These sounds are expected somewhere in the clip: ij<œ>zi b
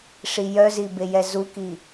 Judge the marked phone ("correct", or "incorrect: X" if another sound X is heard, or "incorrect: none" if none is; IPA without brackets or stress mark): correct